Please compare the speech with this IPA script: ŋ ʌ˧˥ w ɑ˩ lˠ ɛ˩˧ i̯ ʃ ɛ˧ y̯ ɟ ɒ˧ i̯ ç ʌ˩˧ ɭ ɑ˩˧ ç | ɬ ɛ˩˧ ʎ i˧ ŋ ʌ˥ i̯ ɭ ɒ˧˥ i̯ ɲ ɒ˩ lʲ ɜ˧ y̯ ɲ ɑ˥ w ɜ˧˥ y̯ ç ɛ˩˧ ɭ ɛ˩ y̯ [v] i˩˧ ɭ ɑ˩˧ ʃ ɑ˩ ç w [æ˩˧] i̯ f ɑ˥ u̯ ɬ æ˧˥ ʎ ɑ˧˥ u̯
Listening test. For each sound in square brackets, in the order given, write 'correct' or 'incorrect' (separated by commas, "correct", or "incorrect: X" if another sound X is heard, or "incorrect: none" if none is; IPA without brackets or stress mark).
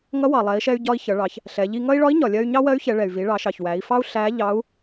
correct, correct